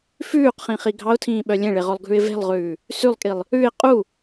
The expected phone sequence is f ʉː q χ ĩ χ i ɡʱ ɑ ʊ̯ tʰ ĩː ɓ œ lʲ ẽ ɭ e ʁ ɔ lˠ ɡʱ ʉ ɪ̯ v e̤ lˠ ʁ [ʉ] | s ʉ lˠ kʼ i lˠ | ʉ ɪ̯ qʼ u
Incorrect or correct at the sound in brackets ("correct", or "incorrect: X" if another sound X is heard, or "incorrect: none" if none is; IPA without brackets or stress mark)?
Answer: incorrect: ʉː